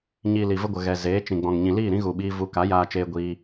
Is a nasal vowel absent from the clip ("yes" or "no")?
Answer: no